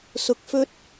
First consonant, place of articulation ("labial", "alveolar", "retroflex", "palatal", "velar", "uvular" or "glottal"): alveolar